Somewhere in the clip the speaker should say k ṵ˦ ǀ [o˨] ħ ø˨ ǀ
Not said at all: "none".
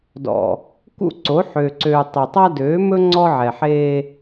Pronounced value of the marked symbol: o˨˦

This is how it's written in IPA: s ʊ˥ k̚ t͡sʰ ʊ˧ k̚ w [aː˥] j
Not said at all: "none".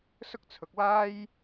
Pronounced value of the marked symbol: aː˥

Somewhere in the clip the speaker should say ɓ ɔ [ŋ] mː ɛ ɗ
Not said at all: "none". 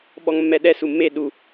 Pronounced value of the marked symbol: ŋ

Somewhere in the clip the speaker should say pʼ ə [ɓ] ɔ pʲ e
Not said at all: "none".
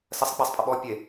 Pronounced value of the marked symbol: ɓ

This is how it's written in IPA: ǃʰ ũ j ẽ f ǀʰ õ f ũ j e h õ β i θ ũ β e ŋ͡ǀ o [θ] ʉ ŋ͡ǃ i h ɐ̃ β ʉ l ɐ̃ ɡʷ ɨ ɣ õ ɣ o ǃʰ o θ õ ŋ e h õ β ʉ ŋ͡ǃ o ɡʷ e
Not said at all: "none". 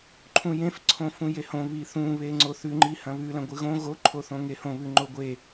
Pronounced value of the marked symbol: θ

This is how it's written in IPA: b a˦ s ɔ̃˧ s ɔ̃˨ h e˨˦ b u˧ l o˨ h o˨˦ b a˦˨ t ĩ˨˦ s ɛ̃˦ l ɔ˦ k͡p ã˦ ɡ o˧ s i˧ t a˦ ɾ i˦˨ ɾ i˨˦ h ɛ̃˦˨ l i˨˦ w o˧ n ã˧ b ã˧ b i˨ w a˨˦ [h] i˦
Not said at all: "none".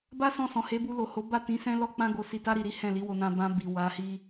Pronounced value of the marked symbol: h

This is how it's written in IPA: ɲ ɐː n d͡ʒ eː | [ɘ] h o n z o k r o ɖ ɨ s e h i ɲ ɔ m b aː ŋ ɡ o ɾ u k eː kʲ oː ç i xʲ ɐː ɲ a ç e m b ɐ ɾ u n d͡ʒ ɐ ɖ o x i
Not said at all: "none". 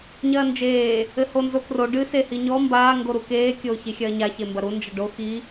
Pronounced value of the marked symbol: ɘ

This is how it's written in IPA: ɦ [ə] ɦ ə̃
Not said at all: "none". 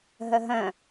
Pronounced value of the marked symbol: ə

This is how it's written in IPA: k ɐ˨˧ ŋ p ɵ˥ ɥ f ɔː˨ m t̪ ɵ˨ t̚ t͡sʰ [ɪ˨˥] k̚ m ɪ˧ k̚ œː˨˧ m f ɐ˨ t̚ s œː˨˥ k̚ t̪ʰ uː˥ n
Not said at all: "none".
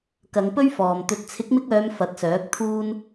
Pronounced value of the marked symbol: ɪ˨˥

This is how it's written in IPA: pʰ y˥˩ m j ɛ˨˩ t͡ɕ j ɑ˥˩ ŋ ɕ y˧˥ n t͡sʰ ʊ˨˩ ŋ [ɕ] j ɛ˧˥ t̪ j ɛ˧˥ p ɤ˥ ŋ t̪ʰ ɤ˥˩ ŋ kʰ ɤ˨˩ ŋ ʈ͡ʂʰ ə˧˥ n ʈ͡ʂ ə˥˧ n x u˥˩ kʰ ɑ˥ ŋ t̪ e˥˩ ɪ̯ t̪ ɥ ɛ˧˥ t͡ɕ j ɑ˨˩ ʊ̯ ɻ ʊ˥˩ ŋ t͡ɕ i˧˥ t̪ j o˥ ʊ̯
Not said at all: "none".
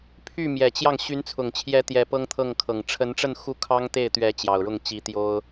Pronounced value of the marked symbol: t͡ɕʰ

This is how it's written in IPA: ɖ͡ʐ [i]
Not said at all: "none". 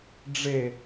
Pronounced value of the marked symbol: e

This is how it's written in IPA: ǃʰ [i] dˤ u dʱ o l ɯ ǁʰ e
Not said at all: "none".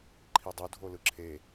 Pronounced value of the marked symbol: i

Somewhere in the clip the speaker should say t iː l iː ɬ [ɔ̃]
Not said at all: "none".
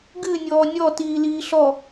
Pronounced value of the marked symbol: ɔ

